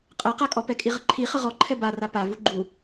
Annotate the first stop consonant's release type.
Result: ejective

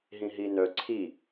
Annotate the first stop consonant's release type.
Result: click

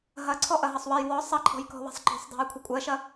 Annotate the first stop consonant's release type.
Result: click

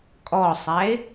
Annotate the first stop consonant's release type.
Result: ejective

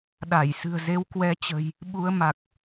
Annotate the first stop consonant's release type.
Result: implosive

